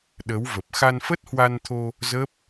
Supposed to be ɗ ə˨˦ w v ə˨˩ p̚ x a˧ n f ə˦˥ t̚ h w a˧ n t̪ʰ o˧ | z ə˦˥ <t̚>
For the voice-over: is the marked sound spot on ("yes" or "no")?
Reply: no